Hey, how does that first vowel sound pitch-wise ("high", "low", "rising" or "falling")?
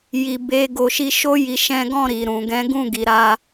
low